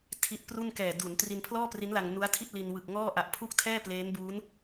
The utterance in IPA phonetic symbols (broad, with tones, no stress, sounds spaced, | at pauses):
tʰ i˦˥ t̚ p r u˥˩ n k ɛː˨˩ d u˩˦ n t r i˧ n pʰ l ɔː˥˩ p r i˦˥ n l a˧ ŋ n u˦˥ a̯ tʰ i˥˩ t̚ l i˧ n w ɯ˨˩ k̚ ŋ ɔː˥˩ ʔ a˨˩ ʔ pʰ u˥˩ k̚ tʰ ɛː˥˩ p l eː˦˥ n b uː˦˥ n